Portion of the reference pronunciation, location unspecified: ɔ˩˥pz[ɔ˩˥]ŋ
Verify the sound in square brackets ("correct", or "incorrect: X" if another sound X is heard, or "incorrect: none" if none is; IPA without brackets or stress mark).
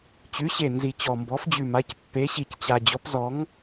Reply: correct